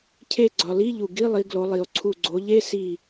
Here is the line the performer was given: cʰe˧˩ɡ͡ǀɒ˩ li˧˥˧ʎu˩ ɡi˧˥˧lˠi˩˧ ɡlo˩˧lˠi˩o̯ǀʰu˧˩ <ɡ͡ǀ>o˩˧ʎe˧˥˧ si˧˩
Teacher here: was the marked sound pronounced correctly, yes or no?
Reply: yes